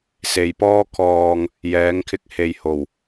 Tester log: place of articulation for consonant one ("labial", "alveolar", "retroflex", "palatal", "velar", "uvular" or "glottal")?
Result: alveolar